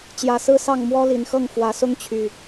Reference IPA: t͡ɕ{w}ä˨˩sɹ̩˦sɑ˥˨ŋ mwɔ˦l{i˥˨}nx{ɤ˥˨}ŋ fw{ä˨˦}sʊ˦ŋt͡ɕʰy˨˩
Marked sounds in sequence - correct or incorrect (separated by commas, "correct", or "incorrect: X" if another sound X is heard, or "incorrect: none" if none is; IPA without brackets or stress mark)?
incorrect: j, incorrect: i˨˦, correct, correct